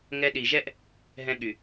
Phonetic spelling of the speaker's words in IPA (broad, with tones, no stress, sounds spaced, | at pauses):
ŋ ɛ˧ ɗ i˨ ʒ ɛ˦ ʔ | ɦ ɛ̃˧ ɠ y˨